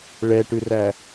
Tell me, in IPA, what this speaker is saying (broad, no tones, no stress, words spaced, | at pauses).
ɭɛʈʉræ